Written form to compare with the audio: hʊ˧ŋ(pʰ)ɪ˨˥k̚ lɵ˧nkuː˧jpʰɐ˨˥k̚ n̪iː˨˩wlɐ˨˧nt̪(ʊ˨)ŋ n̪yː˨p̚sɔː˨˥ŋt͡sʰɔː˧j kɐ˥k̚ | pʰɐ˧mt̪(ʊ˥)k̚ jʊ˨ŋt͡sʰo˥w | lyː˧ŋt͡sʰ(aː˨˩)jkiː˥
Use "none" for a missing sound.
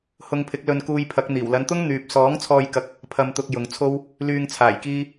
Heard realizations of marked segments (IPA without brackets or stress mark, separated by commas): pʰ, ʊ˥, ʊ˧, aː˨˩